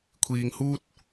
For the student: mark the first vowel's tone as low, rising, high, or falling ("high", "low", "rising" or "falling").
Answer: low